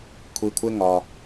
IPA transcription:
kʷʰ i˧ kʷʰ ɪ˦ ŋ ɒ˧

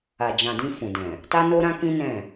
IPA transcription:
a˨ d͡ʒ ã˨ d ĩ˧ f ũ˨ d ɛ̃˨ | t a˦ n o˦ ɾ ã˦ k ĩ˦ n ɛ̃˦˨

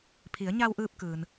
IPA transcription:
pʰ i˩˧ ə̯ ɲ a˧ w ʔ ɯː˧ p̚ k ɯː˩ n

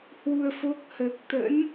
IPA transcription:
h w u˧ ə̯ f o˦˥ k̚ h əː˨˩ k̚ t̪ ə̰˧˥ n

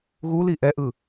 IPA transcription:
ɣ u l i ʔ ɛ ʔ ɯ

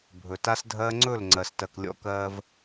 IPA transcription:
bʱ ɵ˨ t a˦ s dʱ ɜː˦ ŋ͡ǀ ɵ˦˨ l ŋ͡ǀ ɜ˨ s t ɜ˨ k lʲ ɔ̰˦ k ɜː˦ v

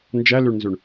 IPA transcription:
n d͡ʒ æ l ø ɳ n z ø ɳ

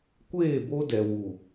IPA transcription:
kʷ eː˦˨ b o˦ d ɛ˨ w u˨

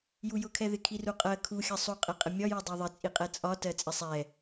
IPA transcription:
j u j ʊ kʰ ɛ ð ɪ kʰ i r u qʼ ɜ kʰ u xʲ ʌ sˤ u qʼ ɛ qʼ ɪ mʲ ɒ j u dˤ ɜ ðˤ ɪ t͡sʼ i qʼ ɛ t͡sʼ ɒ t ɜ t͡sʼ ɪ sˤ ɛ

